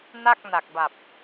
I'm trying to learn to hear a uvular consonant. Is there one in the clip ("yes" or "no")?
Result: no